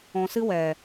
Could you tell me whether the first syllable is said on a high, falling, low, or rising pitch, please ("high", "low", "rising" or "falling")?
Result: low